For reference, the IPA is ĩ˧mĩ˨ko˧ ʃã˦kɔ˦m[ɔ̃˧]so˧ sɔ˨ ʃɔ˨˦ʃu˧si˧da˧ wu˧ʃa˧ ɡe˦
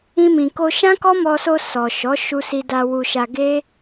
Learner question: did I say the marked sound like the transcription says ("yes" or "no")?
no